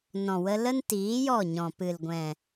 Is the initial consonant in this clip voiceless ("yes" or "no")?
no